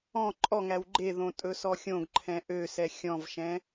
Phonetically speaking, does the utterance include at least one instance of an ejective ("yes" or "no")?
yes